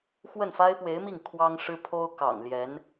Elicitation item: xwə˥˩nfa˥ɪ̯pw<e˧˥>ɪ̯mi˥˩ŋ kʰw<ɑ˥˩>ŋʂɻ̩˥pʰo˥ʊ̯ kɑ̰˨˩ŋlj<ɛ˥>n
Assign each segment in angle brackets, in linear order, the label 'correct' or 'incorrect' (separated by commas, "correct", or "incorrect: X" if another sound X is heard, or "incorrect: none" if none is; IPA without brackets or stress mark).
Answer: correct, incorrect: ɑ˥, incorrect: ɛ˧˥